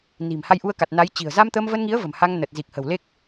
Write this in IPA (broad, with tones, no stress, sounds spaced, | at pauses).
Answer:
n i̤˨˩ m h a˧ j ʔ u˧ ə̯ k a˨˩ t̚ n a˨˦ j t͡ɕ i̤˨˩ ə̯ z a˧ m t̪ əː˧ m v ə˧ n ŋ i˨˦ ə̯ v ə̤˨˩ m h a˧ ŋ n ə˨˩ t̚ z i˨˩ k̚ h ə̤˨˩ w l e˦˥ k̚